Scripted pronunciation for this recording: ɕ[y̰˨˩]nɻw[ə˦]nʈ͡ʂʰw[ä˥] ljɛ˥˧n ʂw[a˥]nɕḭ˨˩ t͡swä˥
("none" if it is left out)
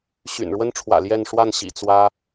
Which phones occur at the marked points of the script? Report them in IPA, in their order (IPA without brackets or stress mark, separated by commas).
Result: y̰˨˩, ə˥, ä̰˨˩, a˥˩